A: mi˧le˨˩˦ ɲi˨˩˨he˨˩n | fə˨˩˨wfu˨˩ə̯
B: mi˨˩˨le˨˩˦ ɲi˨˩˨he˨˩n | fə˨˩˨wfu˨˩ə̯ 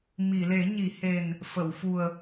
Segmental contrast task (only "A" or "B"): B